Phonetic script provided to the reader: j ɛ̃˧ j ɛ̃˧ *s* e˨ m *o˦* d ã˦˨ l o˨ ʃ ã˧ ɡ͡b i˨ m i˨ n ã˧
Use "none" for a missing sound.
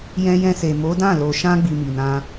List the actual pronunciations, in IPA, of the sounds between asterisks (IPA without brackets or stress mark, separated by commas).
s, o˨˦